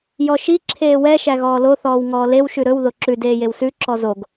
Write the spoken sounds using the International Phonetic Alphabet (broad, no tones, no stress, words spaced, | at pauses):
jɔʃi ǁʰeːwɛ ʃæɣɔːlo θɔːwŋɔːlew ʃʉɾɵw ðoǁʉd eːjewsʉ ǁɔzoɡ